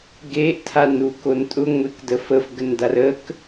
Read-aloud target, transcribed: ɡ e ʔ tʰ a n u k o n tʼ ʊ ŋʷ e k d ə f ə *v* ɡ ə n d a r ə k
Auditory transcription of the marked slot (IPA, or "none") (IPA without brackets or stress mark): f